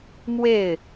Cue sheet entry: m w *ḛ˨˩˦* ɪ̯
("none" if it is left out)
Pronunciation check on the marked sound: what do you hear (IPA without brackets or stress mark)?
e˥˩